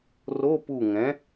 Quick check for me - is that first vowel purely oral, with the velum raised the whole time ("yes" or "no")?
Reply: yes